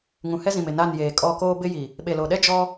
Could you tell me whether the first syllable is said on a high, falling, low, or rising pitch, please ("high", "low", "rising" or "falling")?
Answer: low